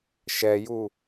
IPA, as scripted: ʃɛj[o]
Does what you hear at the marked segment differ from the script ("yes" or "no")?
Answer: yes